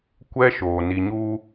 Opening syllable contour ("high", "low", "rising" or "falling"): high